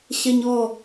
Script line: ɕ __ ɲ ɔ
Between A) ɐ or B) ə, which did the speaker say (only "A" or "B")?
A